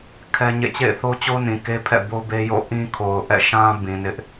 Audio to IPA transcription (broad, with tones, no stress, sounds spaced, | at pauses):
kʰ ɛ˦ ɲ ḛ˦˨ t͡ɕ ḛ˦˨ ɪ̯ θ o˦ t͡ɕ o˦ n ĩ˨ k e˦ pʰ ɛ̰˦˨ b o˦ b e˦ j o̰˦˨ ʔ ĩ˦ kʰ o˨ ʊ̯ ʔ ɛ̰˦˨ ʃ ã˦ b ĩ˨ n ɪ˦ ʔ